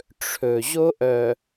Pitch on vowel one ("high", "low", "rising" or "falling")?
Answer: low